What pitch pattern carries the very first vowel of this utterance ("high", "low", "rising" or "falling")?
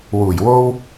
low